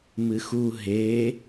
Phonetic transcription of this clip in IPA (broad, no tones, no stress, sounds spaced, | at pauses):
m ɨ x u ɦ e